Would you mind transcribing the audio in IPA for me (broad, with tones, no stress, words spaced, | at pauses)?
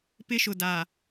pɪ˦ʃʊ˨da˨